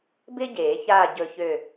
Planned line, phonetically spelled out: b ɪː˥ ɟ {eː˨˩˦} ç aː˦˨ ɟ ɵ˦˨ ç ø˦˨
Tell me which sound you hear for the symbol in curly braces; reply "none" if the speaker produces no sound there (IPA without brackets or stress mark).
eː˨˩˦